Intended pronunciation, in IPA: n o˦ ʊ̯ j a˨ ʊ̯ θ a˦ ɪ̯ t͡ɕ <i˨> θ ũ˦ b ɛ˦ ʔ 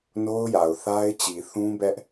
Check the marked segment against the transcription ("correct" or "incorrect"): correct